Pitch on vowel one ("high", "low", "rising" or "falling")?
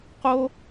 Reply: high